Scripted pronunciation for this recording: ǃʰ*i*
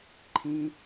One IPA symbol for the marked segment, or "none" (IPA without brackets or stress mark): ĩ